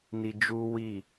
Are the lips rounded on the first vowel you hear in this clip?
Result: no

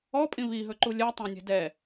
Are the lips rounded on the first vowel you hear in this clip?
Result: yes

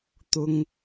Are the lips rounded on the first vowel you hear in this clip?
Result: yes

